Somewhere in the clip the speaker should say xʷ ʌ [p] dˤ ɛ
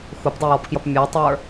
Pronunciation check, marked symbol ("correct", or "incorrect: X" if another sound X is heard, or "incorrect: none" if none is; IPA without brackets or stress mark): correct